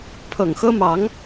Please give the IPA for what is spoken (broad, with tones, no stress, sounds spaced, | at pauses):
pʰ ɤ˨˩ ŋ x ɤ˥ m ɑ˧˥ ŋ